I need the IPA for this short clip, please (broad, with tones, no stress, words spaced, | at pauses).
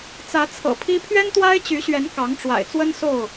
t͡sä˨˦t͡sʰɤ̰˨˩ pʰi˦ pʰɥɛ˦nt̪wa˦ɪ̯t͡ɕy˨˦ɕɥɛ˨˦n kɑ˨˦ŋʈ͡ʂwa̰˨˩ɪ̯t͡swə˦n so˥˨ʊ̯